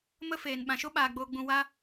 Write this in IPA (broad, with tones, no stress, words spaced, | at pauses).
mə˦feː˨n ɓã˨ʃo˦ɓaː˨ ɡ͡boː˧ɡ͡bũ˧ wa˦